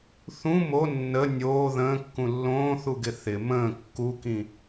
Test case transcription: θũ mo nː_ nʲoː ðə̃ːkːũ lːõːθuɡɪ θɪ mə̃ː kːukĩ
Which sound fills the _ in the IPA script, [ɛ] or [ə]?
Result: ə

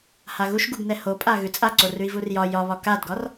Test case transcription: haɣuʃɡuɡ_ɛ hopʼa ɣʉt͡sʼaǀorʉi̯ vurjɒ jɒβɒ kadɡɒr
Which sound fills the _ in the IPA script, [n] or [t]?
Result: n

